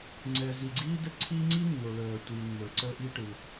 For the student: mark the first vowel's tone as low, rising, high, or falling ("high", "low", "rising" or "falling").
low